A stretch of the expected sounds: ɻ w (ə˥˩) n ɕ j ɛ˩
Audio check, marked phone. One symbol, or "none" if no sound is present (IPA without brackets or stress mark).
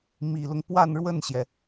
ə˥˩